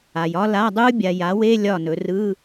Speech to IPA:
a˨ j ɒ˦˥ l a˧˥˧ dˤ ɯ˦˥ bʲ a˨ j a˩˥ w e˧˥˧ lʲ ɒ˥˩ n ɵ˩˥ r ɯ˧˥˧

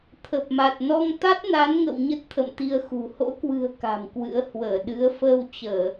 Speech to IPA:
t̪ʰ ə˨˩ p̚ m a˨˩ t̚ n ɔ˧ ŋ t̪ a˦˥ t̚ n a˨˦ n ŋ ə̰˧˨ w ɲ ə˦˥ t̚ t̪ʰ ə̰˧˨ m t̪ i˧ ə̯ x ṳ˨˩ h o̰˧˥ k w ɨ̤˨˩ ə̯ k a̤˨˩ m k w ɨ̰˧˥ ə̯ h w əː˧˩ ɗ ɨ˨˦ ə̯ f əː˧ w t͡ɕ əː˧˩˨

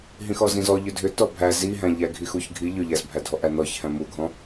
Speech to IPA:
ɦ ĩ x ɔ z ĩ z ɔ ʎ ʏ dʱ ʏ t ɔ bʱ æ z i ɦ æ̃ ʎ æ ɡʱ i x u ç ɡʱ i ʎ ʏ ʎ æ z bʱ æ dʱ ɔ ʔ æ n ɔ ç h æ̃ m u ɡʱ ɔ̃

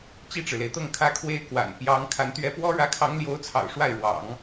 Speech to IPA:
t͡ɕ i˥˩ ʈ͡ʂ ɻ̩˩ l e˩ ɪ̯ t̪ ɤ˥˩ ŋ kʰ ä˥ kʰ w e˥ ɪ̯ k w a̰˨˩ n p j ɑ˧˥ ŋ kʰ a˧˥ n t̪ ɥ ɛ˥ p w ɔ˥ ɻ ä˧˥ kʰ ɑ˧˥ ŋ l j o˧˥ ʊ̯ t͡sʰ ɑ̰˨˩ ʊ̯ ʂ w a˥˩ ɪ̯ ɻ w ɑ̰˨˩˦ ŋ

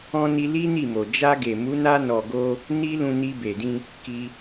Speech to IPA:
ɔ̃˧ n i˧ l i˦ n i˦˨ m o˨ d͡ʒ a˧ ɡ e˨ m u˨˦ n a˧ n ɔ˨ ɡ o˧ | n i˦ l ũ˧ n i˧ b e˨ d ĩ˧ | k i˧

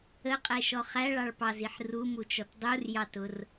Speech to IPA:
ə qʼ ɛ ʃ ɔ χ æ ɭ ɑ ɭ p ɑ z i ħ r u m u t͡ʃ ɔ t dˤ u r j ɑ t ʊ r

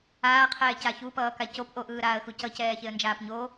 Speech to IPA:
aː qʰ ɛː c a ç u p ʌː k a c o p ʔ o ʔ ɯː ɾ aː ə̯ x u c ʌ c ɛː ç e ə̯ n d͡ʒ aː p ɲ o

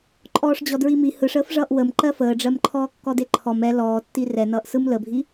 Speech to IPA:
ǃʼ ɔː ʂ d͡ʑ ɔ d ɹ i m i h ɯ ʂ əː f ʐ ʌː ʔ w ə m ǃ ɜ f əː ɖ͡ʐ ɜ m ǃʰ ɔː kː ɔ d e ǃʰ ɔ m ɛ l ɔː tː i r ɛ n ʌː ʔ s ɯ m l ə bʱ i

